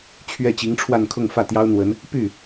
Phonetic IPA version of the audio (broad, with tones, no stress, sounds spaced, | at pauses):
t͡ɕʰ ɥ ɛ˥˩ t͡ɕ i˧˥ ŋ ʈ͡ʂʰ w a˥˧ n kʰ ʊ˥˧ ŋ f ä˥˩ t̪ j ɑ˥ ʊ̯ n̪ w ə˧˥ n | p y˥˩